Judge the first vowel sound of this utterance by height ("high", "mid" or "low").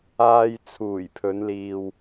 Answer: low